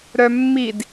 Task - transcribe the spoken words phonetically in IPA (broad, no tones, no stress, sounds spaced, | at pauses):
ɾ œ mː i d